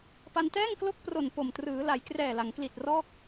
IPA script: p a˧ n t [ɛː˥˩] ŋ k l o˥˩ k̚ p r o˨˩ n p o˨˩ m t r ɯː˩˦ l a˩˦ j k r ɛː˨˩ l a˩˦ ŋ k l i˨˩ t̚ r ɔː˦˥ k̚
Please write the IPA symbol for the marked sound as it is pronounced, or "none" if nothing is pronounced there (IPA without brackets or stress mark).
ɛː˥˩